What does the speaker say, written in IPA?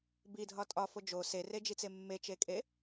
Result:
bidʱɒ tʼɒfo d͡ʒo sered͡ʒit͡se mːet͡ʃekʼe

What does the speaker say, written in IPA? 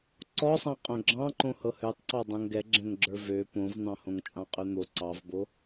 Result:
ǀɔsˤɑ̃qʼõ ɡ͡ǁɑ̃ǃõ hɤhøtˤǀɑ dˤõŋɡɛɡ͡ǁɛ̃ŋɡ͡ǁə˞ vø põvn̪ɑ̃hõŋ t͡ʃʼɑ̃qʼøn̪o ǀɑvbo

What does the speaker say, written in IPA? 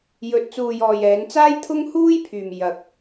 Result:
jɵ˨t̚t͡suː˨jɔː˨jɛː˨˧n t͡saː˥jt̪ʰʊ˥ŋ huː˥jpʰyː˨m jɐ˨˥k̚

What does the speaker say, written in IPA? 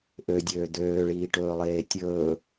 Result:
ʔødʲøː d̪øːɭiːʈɵːlˠeː tʲɵː

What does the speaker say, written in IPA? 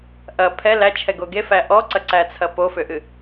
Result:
ʔɐ pʰɛ læt͡ʃʰɛɡo ɡefæ ʔɔǀɐǀæt͡sʰɐ pofʏʔɨ

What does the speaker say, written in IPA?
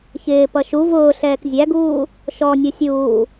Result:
çɪː pʌʃu vʊː ɬɛːkzʲæɡuː | ʃɔ nʲusʲuː

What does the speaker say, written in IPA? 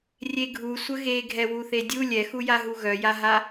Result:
rʲeɡʱu sʷəɣeɡʱɛ wuθedʲu lʲɛxujaɦu ɣœjaɦa

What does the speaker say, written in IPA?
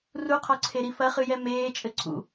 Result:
ruqʰɔǀʰeɾi fɐχɨjɛ meːt͡ʃʼɘ ǀʰṵ

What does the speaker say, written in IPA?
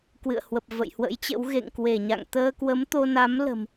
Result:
kwɨ̰˧˨ə̯hwə˨˩p̚ və̰˧˨jhwə̰˧˥jt͡ɕə̰˧˥w ɣḛ˧˨ŋkwe˧˩ɲa̰˧˨ŋ t̪əː˧kwə˨˦mt̪o˧na˨˦m lə̤˨˩m

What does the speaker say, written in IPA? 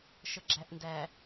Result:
ʃəɡ͡ǁæʔndæ

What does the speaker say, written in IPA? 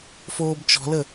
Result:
foːbt͡ʃɔ̤lə

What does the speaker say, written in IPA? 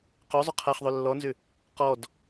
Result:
qøzˤʏ qʰaχðˤø lːɔnzʏ | qɔd

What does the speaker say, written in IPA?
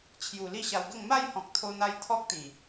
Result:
t͡ɕʰju˨˩ li˥˧ɕa˧wɡə˥˧ŋ ma˥˧jhɔ̃˨k̚t̪ʰo˧n̪a˧j t̪ʰɔ˦k̚t̪ĩ˨˩

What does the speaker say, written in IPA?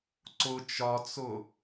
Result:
ǀʊ t͡ʃɒt͡sʊ

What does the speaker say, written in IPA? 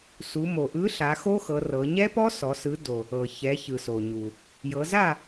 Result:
su˩˧mo˩ʔɯ˨˥ɬa˩˧ xo˦˥xɤ˩˧ rɤ˩˧ ɲɛ˦˥pɔ˦˥sɔ˩˧ sɯ˨˥ do˩ | ɤ˩çɛ˩˧ çɯ˩so˩ɲu˩ | jɤ˩˧za˥˨

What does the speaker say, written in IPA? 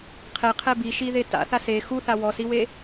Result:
qʰɛqʰɛ biʃiðe ta̰θas e xuθa wɔsiwe

